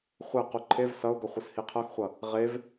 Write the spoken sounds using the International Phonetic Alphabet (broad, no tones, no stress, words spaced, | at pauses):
χʷɛqu ǃʰev sʌʊ̯ɡʌ χʷɯshiqʰʌxχʷʌ | ʁev